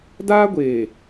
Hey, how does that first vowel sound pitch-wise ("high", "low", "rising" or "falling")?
high